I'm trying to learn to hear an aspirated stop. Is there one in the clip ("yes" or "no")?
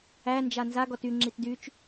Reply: no